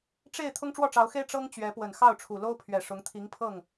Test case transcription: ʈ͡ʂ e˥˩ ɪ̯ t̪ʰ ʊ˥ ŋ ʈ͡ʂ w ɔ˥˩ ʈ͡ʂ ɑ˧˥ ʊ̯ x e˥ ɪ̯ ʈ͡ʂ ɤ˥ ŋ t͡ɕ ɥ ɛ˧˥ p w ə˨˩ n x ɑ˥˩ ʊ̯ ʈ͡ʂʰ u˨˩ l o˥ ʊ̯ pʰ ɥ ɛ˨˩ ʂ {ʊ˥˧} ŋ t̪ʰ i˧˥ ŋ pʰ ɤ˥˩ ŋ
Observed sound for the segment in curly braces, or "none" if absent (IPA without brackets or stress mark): ʊ˧˥